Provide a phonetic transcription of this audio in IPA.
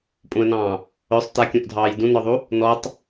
pʼ ũ ə̯ n ɑ̃ː | œ sˤ t a kʲ ũ ʔ dʱ ɑː j d ũ n ɔ ðˤ u | n ɔ tˤ

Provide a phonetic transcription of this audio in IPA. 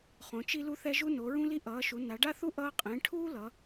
χ õ˩˥ t͡ʃ i˥ l u˥ θ ɛ˥ ʒ u˥ n o˩˥ ɹ ũ˥ l i˥ ʔ ʌː˩˥ ʃ u˩˥ n a˩˥ ɖ a˥ θ u˥ ʔ ʌː˥ qʼ ẽ˩˥ ʈʰ uː˥ l ʌ˩˥

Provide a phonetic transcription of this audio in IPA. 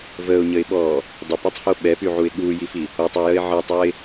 v əː ʊ̯ ɲ ə ɪ̯ ɓ ɔː | dˤ e p i tˤ h o ɓ ɛ p y ʕ u ɪ̯ ɠ uː j i f i | o tˤ o j ə ɪ̯ ʕ əː tˤ ɔ ɪ̯

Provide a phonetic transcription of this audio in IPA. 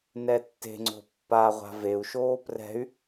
n ɛ tː e̤ ŋ͡ǀ o̤ pː a ʁʷ a̤ v e u̯ ʃ oː p r ɛ̤ y̯

